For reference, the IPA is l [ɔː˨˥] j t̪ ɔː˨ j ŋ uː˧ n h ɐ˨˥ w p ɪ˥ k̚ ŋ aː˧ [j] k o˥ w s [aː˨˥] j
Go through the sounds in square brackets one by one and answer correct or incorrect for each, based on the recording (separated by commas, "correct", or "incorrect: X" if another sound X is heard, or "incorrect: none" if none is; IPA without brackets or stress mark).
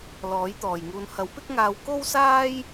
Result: correct, incorrect: w, incorrect: aː˥